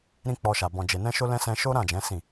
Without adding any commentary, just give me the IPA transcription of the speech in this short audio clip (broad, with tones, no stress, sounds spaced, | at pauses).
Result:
ɾ ĩ˧ k͡p ɔ˧ ʃ a˨ b ɔ̃˧ d͡ʒ e˧ n ɛ̃˦ ʃ o˦ l ɛ̃˦ s ɛ̃˧ ʃ o˦ ɾ ã˦˨ d͡ʒ ɛ̃˨˦ s ĩ˦˨